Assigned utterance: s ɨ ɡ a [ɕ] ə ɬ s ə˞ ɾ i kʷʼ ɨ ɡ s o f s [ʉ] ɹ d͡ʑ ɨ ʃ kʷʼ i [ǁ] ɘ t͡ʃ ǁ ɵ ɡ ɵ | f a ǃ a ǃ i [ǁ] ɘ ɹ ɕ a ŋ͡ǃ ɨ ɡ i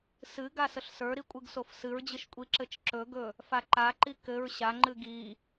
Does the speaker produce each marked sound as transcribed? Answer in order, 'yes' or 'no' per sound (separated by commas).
no, no, yes, no